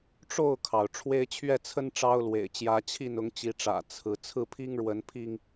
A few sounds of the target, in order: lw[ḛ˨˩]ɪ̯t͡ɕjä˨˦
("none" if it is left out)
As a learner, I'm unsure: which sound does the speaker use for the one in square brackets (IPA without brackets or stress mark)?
ḛ˨˩